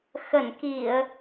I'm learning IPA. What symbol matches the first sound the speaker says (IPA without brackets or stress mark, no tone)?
x